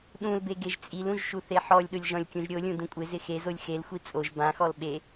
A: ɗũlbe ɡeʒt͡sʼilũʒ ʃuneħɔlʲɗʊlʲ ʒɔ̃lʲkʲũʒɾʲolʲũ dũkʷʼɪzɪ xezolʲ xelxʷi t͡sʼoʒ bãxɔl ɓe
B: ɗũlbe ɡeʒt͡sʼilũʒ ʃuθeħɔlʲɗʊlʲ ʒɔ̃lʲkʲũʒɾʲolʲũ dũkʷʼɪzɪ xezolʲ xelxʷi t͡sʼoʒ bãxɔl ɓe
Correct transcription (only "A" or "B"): B